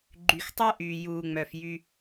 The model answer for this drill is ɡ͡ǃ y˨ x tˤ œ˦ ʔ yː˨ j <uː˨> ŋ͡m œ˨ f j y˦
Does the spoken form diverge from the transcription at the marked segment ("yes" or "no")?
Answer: no